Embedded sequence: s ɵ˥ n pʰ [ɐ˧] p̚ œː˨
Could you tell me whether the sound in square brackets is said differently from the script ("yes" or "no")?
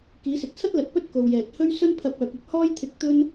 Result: no